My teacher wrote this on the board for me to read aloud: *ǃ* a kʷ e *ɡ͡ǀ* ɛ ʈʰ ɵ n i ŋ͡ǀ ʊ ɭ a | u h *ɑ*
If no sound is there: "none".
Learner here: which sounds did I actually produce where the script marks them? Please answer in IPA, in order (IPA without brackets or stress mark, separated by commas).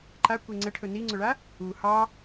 ǃ, ŋ͡ǀ, ɑ